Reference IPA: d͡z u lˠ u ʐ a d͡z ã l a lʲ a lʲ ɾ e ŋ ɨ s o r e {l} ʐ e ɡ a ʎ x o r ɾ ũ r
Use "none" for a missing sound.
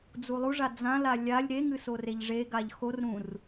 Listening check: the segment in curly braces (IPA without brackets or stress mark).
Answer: ʎ